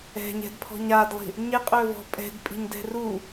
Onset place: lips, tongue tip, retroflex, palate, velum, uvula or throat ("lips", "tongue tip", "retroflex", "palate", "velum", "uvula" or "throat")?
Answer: palate